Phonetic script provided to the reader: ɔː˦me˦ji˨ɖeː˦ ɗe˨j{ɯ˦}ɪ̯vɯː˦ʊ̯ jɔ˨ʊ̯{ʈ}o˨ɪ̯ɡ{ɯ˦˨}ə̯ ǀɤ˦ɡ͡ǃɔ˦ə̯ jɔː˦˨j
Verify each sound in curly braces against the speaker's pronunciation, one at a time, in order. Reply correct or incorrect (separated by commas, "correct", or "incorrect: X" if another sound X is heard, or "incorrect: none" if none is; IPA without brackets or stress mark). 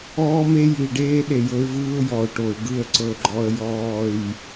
incorrect: ɤ˦, correct, correct